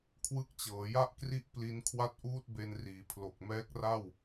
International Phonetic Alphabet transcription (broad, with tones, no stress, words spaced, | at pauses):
kʰwɯ˦˥k̚t͡ɕɤː˩˦ja˥˩ʔkri˥˩ʔ pli˦˥nkʰwa˥˩t̚ʔuː˥˩t̚be˧n riː˩˦pʰlo˨˩k̚mɛː˦˥k̚ra˥˩w